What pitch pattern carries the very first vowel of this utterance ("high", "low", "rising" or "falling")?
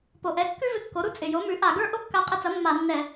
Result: low